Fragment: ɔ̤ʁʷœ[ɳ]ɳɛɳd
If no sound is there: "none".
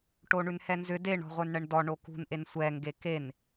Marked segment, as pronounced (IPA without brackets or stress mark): n